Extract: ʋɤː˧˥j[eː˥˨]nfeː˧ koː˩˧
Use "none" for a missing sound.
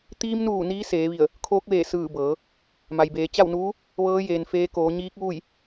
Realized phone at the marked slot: eː˩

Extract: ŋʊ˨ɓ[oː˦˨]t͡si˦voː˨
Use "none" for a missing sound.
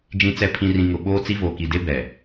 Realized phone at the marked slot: oː˦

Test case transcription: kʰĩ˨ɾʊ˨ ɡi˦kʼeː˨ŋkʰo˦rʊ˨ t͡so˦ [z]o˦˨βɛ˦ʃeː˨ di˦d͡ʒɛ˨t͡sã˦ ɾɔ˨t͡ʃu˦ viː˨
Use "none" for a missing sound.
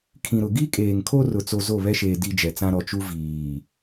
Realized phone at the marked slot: z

